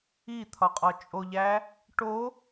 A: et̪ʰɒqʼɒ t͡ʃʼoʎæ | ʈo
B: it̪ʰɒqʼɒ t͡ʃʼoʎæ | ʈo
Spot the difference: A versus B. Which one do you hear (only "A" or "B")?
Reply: B